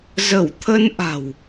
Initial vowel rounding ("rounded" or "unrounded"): unrounded